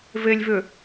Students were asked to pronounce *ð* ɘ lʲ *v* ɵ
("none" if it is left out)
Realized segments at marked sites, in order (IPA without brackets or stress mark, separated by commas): v, v